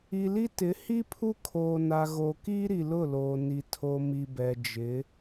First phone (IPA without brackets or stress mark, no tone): i